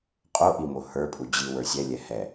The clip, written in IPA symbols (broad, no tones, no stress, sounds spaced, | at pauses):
qʼ o ʔ i m o h ə˞ pʼ u d͡ʑ i w ə˞ sʲ ɛ lʲ ɛ h ɛ